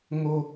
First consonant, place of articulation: velar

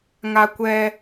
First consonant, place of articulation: velar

